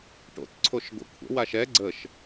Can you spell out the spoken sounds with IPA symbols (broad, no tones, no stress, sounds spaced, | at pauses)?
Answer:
ʈ o̰ t ǀʰ o ʃ ɡʷ ə̰ kʷʰ ə̰ w a ʃ ɛ ɡ͡ǀ ə ʃ